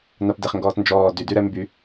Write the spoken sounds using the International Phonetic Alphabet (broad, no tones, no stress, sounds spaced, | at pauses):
n a p d e χ ŋ ɡ ɔː t n d͡ʒ ɔː d y d y ɾ ɛ m b y